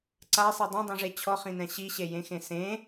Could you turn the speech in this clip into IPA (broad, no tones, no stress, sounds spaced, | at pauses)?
ǀ a sˤ i dˤ ɛ̃ dˤ ĩ ʐ e t͡ɕʰ ɔ χ ĩ n ɛ̃ ɕ i ɕ e j ẽ x ẽ s ẽ